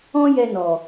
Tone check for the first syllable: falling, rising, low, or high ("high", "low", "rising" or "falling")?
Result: high